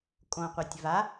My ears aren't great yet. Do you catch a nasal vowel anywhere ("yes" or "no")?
yes